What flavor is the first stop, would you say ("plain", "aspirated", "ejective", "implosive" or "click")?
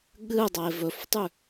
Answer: implosive